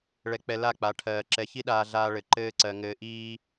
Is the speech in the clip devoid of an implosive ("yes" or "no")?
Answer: no